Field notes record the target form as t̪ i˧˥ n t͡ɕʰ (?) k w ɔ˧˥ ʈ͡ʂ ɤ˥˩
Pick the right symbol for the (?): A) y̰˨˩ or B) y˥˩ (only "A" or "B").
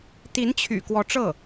A